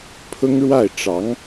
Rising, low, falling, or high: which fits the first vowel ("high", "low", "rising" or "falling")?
high